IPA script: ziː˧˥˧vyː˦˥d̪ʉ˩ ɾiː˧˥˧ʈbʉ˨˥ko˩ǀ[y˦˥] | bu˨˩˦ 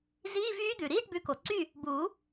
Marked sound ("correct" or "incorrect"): incorrect